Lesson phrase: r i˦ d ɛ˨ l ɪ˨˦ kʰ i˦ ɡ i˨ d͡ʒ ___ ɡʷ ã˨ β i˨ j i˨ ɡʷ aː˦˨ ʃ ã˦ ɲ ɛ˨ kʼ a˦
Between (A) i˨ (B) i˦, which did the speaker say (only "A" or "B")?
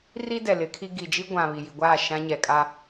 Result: B